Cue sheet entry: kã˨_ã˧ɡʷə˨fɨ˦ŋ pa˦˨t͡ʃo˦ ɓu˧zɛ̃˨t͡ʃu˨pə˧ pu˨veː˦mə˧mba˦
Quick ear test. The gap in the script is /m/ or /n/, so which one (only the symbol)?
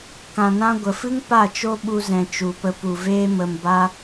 n